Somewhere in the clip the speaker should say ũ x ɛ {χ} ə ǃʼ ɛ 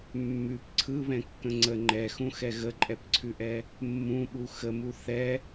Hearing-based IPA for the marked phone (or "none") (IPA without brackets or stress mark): ɣ